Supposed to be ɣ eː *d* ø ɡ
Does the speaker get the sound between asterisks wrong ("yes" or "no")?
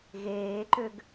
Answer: yes